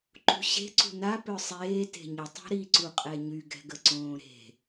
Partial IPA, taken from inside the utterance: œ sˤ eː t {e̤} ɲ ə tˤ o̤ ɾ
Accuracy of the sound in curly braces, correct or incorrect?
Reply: correct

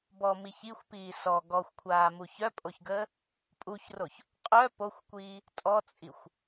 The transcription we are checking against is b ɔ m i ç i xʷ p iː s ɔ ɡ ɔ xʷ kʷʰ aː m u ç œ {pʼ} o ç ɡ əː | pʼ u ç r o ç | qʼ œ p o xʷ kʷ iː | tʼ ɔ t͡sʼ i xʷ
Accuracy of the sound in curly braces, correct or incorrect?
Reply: correct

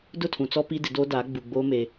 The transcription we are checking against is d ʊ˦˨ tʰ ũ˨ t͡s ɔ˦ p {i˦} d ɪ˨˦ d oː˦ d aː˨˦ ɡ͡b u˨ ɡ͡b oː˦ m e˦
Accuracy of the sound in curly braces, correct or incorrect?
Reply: correct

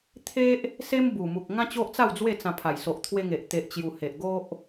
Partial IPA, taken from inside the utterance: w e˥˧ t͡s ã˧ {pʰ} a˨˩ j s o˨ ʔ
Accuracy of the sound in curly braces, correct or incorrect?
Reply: correct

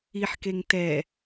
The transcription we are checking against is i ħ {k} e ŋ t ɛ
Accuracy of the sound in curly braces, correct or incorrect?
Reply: correct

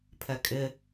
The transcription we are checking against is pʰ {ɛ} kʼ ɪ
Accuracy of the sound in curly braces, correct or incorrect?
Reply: correct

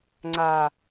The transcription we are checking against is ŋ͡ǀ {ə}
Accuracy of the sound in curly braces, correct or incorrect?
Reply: incorrect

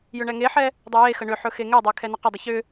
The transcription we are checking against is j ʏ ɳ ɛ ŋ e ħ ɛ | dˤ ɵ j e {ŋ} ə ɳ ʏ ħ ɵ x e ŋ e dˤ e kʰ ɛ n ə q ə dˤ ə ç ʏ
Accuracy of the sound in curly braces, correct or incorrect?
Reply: incorrect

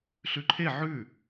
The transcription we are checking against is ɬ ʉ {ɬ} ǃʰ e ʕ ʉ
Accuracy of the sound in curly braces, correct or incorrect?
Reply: incorrect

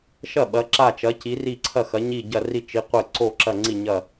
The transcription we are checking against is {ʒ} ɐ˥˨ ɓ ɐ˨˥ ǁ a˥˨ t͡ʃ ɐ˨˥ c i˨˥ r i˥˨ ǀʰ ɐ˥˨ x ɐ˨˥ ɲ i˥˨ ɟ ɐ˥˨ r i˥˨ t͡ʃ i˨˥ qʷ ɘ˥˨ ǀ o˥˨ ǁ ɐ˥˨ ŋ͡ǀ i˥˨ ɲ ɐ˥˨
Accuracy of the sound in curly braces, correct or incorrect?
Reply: incorrect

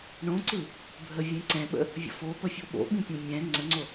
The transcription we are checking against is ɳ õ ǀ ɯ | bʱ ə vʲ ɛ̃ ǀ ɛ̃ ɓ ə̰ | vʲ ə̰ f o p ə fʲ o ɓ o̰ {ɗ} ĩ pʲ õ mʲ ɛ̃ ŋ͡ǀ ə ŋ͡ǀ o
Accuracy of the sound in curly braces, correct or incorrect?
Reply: incorrect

